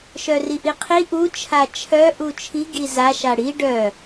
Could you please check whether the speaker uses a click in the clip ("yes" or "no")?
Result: no